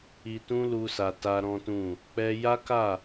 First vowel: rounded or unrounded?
unrounded